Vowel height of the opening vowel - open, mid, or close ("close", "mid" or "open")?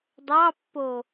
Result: open